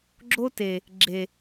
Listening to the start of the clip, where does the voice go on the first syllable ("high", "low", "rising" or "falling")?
high